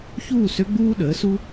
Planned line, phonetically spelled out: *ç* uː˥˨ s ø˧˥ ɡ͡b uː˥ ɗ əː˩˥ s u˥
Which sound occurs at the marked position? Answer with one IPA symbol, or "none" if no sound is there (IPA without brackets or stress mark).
ç